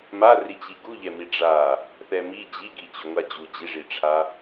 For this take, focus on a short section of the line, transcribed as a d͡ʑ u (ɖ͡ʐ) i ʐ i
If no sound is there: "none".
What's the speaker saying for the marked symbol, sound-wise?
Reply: d͡ʑ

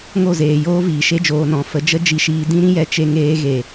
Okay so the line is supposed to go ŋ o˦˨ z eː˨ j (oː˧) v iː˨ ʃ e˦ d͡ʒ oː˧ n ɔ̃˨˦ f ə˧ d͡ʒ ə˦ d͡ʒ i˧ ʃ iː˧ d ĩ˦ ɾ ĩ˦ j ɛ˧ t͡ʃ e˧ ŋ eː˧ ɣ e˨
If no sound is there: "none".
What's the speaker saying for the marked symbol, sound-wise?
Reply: oː˦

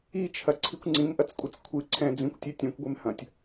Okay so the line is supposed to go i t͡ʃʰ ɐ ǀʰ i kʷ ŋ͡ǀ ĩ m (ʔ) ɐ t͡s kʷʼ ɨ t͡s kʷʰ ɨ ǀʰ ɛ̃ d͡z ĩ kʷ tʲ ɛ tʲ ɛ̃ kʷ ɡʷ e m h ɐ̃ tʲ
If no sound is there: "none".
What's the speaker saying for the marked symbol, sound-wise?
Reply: ʔ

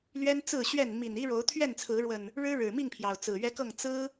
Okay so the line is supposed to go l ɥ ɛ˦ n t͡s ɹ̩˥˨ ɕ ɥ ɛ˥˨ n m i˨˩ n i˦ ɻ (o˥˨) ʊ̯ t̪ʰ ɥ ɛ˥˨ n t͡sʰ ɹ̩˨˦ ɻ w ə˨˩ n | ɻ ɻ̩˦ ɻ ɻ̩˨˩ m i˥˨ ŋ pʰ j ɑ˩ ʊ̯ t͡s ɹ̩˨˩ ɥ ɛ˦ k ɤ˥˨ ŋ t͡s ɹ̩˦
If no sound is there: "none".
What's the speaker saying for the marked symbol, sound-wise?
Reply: o˨˦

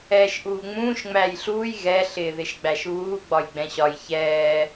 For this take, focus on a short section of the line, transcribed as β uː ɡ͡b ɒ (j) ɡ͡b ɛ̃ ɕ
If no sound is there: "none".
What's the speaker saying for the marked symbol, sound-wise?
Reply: j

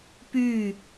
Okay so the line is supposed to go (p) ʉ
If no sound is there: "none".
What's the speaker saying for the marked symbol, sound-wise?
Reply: p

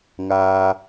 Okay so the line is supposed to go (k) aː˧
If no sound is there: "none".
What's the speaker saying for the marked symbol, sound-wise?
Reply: ŋ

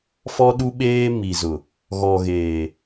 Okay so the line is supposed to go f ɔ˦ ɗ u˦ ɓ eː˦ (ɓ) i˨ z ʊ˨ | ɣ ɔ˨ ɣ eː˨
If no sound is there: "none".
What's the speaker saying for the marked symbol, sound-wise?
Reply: m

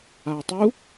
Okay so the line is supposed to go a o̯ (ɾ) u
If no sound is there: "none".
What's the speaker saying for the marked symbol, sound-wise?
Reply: tˤ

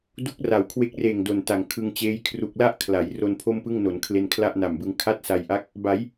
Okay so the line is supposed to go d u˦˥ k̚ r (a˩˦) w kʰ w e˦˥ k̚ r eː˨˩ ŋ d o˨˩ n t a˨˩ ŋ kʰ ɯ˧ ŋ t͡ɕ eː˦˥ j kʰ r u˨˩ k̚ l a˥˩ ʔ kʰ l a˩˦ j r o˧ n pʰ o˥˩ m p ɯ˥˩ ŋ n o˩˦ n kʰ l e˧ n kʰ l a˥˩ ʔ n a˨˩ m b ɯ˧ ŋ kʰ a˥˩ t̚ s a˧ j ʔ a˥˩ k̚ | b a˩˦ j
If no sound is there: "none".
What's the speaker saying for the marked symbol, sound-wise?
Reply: a˩˦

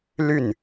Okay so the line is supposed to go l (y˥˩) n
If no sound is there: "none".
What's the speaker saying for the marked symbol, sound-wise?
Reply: y˥˩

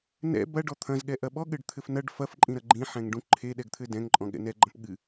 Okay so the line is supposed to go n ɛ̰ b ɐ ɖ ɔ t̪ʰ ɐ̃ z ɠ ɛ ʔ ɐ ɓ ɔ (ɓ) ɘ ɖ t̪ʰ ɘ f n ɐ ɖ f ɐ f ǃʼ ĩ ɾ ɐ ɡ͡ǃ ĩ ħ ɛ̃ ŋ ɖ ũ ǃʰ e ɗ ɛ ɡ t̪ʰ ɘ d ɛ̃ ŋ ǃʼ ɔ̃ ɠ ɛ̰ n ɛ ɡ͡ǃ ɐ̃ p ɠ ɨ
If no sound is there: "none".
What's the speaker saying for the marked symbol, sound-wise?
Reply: ɠ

